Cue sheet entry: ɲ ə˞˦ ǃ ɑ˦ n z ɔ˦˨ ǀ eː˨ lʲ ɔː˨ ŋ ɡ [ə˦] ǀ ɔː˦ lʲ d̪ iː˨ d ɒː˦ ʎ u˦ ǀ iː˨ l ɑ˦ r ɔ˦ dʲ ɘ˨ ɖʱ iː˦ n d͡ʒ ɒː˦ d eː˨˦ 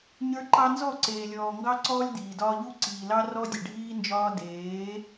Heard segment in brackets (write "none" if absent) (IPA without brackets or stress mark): ɑ˦